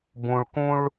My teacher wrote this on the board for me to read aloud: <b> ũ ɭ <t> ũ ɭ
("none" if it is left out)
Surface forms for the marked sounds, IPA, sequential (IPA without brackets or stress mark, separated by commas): b, k